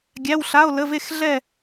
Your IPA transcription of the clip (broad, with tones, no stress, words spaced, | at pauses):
ɡʲæ˧˥˧wɬa˧˥˧o̯lə˧˥˧ ve˥˧xɮɛ˥˧